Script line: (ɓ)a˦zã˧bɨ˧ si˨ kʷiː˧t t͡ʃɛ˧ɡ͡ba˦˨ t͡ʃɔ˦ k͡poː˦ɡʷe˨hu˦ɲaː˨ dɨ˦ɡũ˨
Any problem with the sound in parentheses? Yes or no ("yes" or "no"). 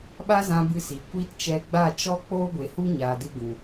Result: no